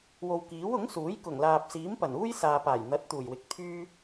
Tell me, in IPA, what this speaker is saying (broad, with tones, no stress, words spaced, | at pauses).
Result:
wo˨wkiː˨˥w ʊ˨˥ŋsuː˨˥j kʊ˨˩ŋlaː˨p̚siː˨˥mpɐ˨˩n uː˥jsaː˨paː˨˩j n̪ɐ˨˥t̚ t̪uː˨˩jwɪ˨k̚t̪ʰyː˥